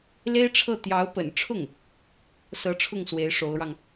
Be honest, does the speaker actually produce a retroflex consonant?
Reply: yes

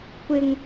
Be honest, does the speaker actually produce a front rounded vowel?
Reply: no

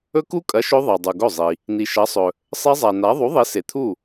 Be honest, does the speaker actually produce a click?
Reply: no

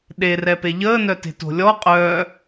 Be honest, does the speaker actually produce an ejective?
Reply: yes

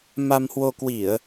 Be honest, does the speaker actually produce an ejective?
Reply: no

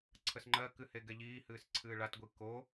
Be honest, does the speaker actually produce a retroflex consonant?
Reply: yes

